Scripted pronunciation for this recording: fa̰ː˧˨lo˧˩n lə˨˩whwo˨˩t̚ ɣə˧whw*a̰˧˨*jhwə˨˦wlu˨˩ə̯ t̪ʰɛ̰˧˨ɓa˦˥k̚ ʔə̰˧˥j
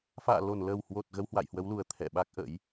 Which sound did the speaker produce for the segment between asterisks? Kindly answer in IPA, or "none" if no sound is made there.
a̰˧˨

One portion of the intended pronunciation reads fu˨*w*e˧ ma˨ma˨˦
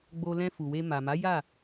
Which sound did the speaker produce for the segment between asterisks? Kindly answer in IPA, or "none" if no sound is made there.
w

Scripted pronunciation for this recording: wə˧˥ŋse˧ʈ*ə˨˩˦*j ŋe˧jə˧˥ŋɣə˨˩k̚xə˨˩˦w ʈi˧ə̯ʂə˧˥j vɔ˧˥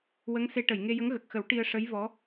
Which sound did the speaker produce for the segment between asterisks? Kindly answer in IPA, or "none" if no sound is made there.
ə˨˩˨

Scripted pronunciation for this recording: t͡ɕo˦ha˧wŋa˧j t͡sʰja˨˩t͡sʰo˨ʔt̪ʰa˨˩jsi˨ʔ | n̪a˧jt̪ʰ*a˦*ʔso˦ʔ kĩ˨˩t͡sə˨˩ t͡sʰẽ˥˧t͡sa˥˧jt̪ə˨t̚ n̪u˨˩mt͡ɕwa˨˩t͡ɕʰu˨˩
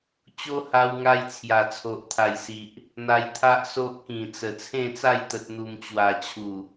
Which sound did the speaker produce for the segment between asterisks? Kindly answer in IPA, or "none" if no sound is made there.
a˦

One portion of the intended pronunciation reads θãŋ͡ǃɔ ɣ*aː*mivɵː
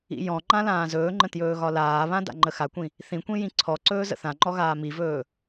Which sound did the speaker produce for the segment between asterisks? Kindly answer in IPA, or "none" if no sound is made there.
aː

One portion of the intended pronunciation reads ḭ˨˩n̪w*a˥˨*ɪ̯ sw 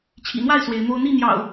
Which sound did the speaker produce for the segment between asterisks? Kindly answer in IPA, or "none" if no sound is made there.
a˥˨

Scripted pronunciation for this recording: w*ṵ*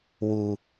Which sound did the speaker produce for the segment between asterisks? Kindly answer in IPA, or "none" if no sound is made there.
u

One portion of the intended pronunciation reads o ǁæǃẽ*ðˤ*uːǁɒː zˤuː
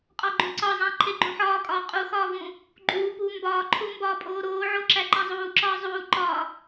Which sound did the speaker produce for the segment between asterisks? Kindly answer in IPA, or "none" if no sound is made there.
zˤ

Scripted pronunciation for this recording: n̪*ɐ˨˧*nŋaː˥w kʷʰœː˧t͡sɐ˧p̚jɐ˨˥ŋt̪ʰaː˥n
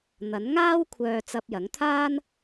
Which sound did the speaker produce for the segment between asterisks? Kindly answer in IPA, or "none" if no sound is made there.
ɐ˨˥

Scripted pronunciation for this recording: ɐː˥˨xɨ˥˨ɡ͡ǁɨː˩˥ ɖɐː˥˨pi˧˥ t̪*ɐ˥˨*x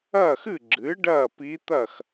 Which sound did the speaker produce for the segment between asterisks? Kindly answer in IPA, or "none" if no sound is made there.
ɐ˥˨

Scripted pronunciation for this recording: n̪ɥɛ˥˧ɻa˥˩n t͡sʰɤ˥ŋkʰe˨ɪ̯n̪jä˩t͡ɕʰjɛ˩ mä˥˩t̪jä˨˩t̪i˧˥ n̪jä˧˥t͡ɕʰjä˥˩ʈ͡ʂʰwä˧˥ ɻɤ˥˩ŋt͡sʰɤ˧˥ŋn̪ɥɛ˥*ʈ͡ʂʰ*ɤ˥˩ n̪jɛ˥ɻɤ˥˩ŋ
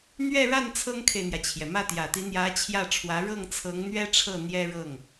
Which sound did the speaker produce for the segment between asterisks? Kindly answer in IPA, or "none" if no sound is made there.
ʈ͡ʂʰ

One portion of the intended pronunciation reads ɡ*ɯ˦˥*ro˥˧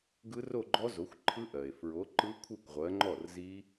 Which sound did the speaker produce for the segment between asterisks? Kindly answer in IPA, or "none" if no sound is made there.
ɯ˦˥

